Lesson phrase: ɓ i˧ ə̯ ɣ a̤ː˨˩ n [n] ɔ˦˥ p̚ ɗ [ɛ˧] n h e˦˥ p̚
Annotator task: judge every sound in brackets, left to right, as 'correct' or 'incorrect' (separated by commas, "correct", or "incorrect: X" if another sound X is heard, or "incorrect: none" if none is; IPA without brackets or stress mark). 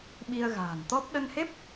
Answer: incorrect: t̪, incorrect: ə˧